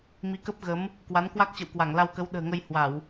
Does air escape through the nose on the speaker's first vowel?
no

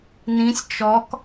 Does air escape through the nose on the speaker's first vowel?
yes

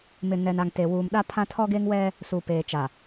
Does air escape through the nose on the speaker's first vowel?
no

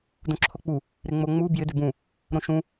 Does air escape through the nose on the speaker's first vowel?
yes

